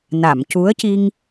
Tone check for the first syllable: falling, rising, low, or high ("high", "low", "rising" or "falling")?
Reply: low